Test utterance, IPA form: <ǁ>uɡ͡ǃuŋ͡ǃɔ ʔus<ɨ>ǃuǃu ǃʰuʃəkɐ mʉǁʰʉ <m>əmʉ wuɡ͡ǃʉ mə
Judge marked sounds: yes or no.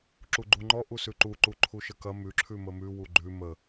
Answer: yes, no, yes

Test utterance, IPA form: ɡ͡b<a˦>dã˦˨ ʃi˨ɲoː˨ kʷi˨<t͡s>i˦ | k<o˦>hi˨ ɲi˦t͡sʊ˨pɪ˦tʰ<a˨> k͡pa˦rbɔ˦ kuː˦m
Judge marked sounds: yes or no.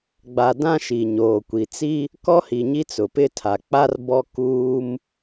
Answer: no, yes, no, yes

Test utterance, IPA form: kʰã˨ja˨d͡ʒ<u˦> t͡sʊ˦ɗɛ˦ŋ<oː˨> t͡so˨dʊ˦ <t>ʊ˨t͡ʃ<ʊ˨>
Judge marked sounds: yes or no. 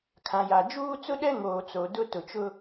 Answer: no, yes, yes, no

